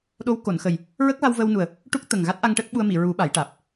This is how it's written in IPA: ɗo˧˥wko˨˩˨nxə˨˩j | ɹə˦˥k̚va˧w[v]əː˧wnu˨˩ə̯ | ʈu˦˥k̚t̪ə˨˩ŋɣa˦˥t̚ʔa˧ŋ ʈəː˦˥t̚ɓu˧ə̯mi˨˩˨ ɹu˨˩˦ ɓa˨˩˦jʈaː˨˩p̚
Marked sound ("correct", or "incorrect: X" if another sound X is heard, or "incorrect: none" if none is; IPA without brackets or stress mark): correct